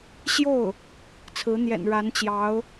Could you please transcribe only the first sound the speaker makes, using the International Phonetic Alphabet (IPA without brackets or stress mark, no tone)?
ɕ